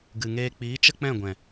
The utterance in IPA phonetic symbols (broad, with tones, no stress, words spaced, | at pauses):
ɡɨ˨ŋeː˧k͡piː˨˦ t͡ʃə˦k͡pɛ̃˦˨ɡʷɛ̃˨